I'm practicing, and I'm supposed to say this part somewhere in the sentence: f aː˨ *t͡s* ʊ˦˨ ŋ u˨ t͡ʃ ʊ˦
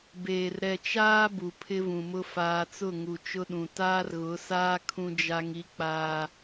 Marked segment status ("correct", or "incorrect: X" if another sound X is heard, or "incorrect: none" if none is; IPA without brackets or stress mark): correct